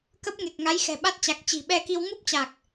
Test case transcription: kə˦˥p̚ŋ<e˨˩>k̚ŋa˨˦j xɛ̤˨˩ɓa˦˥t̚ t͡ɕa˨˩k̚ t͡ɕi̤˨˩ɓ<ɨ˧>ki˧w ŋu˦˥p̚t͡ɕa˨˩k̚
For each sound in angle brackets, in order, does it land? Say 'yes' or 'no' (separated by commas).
yes, no